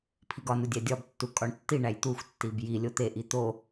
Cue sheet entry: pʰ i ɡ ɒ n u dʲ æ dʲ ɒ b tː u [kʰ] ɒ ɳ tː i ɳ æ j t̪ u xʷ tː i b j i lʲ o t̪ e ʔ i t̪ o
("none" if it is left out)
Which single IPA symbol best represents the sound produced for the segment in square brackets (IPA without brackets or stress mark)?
kʼ